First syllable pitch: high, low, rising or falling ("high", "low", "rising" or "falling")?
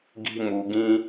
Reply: high